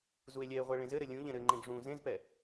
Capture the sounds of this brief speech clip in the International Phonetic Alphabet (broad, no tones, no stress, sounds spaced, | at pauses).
z u e̯ lʲ ɛ e̯ ʁʷ ɛ ɭ ẽ z ɘ ɾ ɘ lʲ ũ ʎ ɛ̃ ɾ ɘ ŋ͡ǃ ẽ ɡ ʐ ũ z ẽ z p ɛ